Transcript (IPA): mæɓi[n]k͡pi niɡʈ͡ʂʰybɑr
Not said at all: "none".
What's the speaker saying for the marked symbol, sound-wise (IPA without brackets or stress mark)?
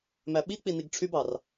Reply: none